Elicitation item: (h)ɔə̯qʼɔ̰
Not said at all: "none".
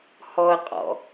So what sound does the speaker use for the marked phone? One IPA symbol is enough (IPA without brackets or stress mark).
h